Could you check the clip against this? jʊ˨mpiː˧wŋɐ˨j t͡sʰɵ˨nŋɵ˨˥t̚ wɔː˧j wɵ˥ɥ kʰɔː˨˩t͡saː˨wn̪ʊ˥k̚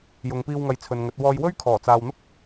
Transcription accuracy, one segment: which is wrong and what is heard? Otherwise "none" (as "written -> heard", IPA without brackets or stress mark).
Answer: m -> ŋ